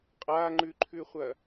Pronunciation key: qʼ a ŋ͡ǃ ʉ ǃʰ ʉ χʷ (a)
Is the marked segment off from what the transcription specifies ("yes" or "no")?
yes